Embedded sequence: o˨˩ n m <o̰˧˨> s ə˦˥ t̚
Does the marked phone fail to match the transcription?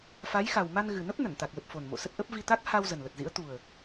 no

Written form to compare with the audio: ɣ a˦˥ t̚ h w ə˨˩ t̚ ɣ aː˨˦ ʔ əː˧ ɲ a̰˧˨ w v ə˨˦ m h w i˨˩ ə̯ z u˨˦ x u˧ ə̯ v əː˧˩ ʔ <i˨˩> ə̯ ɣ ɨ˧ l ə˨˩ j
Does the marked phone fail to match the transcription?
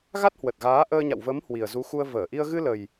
yes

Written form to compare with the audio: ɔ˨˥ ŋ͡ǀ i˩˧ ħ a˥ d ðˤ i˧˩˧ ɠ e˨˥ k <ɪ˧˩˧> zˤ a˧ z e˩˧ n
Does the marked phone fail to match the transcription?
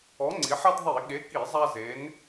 yes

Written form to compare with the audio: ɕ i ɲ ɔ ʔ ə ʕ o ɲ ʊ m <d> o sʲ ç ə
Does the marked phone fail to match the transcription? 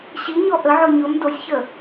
no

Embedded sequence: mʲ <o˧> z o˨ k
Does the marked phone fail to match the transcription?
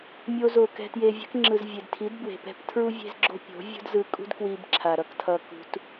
no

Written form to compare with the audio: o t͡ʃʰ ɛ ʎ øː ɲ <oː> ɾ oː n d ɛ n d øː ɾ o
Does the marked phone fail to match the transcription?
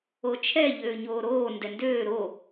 no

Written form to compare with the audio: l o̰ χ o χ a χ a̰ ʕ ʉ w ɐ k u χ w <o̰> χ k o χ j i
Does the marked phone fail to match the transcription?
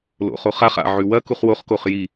yes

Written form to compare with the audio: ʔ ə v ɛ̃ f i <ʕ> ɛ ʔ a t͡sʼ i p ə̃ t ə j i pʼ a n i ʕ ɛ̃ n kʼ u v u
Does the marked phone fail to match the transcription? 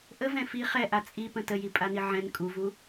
yes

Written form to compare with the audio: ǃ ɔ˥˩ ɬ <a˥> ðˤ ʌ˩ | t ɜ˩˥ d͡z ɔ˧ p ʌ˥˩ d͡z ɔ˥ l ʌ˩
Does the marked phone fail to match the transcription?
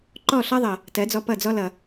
yes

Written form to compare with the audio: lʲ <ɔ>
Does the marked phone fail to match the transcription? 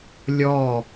no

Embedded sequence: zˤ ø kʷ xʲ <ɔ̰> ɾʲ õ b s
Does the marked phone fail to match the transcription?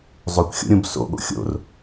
yes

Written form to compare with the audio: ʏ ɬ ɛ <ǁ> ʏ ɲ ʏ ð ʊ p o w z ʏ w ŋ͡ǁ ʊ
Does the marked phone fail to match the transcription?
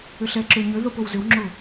no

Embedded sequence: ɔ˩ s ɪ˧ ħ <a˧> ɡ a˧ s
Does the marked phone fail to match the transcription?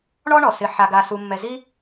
no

